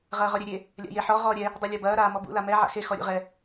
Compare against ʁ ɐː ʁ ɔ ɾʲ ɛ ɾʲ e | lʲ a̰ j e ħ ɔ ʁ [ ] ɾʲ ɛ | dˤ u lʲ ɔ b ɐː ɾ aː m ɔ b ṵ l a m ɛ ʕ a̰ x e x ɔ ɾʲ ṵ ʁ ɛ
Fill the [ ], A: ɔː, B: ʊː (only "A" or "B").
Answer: A